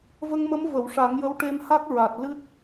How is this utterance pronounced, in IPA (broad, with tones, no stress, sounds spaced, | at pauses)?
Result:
v ə˧ ŋ m ə˧˥ m v ə˨˩˨ w ʂ a˨˩˦ ŋ j ə˧˥ w ʈ e˧ m h a˦˥ k̚ ɹ a˨˩ t̚ l ɨ˦˥ t̚